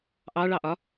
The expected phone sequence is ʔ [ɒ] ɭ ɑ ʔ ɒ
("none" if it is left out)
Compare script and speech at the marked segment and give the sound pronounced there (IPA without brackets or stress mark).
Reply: ɑ